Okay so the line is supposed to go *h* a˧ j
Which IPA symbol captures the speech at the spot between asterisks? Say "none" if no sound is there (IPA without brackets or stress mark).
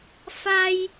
f